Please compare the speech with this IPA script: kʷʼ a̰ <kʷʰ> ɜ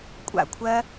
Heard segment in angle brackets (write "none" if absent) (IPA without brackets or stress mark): kʷʰ